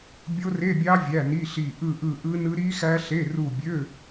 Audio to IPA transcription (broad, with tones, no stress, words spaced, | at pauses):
bʲo˦˥re˧˥˧bʲɑ˦˥ vʲæ˧˥˧ni˧˥˧ɬi˦˨ ʔɯ˦˨ʔɯ˦˨ʔɯ˦˥nɯ˦˥ ɾi˦˥xæ˦˥ɬe˧˥˧ru˦˨ bʲø˧˥˧